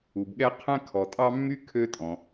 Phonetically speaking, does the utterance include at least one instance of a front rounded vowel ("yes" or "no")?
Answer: yes